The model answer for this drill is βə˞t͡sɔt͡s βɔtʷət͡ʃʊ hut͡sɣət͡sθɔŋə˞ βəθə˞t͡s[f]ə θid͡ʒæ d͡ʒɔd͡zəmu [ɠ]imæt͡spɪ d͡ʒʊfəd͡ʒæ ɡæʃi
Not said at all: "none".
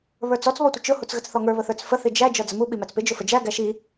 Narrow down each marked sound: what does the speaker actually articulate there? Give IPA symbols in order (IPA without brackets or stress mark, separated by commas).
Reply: f, ɓ